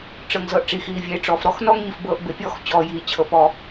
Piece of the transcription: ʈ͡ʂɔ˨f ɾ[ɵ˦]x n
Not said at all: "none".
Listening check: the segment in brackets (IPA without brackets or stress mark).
ɔ˦